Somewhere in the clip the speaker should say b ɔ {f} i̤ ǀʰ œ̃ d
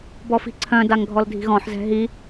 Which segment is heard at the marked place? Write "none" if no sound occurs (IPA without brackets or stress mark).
f